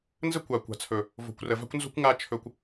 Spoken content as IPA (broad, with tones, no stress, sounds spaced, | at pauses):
n z ə˦ kʷ a˨ kʷ a̤˨ t͡sʰ ɵ˨ | v o̤˨ kʷ r ə˨ v a̤˦ kʷ n z o̤˦ kʷ ŋ a˦ t͡ʃʰ ɵ˧ kʷ